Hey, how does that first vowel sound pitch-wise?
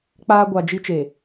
high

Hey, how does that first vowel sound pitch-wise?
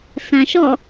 low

